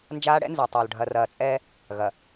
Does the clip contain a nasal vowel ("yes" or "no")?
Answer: no